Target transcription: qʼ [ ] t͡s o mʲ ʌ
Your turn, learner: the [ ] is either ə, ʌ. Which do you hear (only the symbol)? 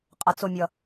ʌ